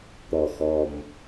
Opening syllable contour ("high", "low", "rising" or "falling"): low